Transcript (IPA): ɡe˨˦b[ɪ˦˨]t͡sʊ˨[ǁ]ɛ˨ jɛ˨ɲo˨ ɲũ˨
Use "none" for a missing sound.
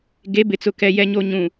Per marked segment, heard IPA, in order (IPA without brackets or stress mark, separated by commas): ɪ˨, k